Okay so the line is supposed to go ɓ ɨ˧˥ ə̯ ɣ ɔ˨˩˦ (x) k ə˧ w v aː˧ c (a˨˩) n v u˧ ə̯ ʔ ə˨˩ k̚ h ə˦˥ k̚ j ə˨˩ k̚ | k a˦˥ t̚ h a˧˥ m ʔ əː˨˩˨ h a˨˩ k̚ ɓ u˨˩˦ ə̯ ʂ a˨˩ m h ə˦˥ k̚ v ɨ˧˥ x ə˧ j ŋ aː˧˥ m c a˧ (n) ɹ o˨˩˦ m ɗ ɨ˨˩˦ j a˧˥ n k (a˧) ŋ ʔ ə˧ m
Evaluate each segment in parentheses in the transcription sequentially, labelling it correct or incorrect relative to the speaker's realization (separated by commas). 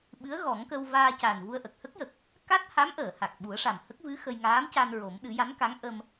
incorrect, incorrect, correct, incorrect